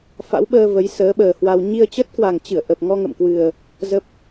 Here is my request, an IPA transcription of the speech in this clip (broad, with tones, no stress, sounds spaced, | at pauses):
f a̰˧˥ w ɓ əː˧ v ə˨˦ j s əː˨˦ ɓ əː˨˩ h w a˧ w ɲ i˧ ə̯ t͡ɕ ə˦˥ t̚ k w a˨˩ ŋ t͡ɕ ɨ˧˩ ə̯ ʔ ə˨˩ p̚ ŋ ɔ˧ ŋ ə̰˧˨ m k w ɨ˨˩ ə̯ | z ə˦˥ p̚